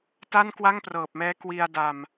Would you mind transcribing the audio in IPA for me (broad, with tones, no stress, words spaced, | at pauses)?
ta˥˩nkwa˥˩ŋprɤː˨˩p̚mɛː˦˥ kwi˧a̯da˧m